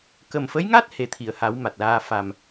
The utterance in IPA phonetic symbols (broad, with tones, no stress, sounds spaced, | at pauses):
k ə˨˩ m f ə˧˥ j ŋ a˦˥ t̚ h e˨˩ t̪ʰ i˨˩˨ ə̯ h a˨˩˦ w m a˨˩ t̚ l aː˧ f a˨˩ m